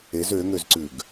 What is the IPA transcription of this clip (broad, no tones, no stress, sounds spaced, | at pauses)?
e z ø ŋ ø z ǀ ʉ ɡ